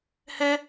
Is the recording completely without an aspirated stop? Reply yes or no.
yes